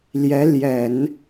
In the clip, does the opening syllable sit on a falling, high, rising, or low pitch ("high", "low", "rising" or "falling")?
rising